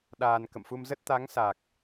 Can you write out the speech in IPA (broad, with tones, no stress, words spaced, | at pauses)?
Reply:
ɗaː˧n kə̰˧˨mfu˧mzə˦˥t̚ t̪a˨˦ŋsa˨˩k̚